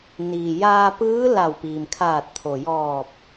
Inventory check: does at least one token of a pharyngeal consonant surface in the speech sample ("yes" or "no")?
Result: no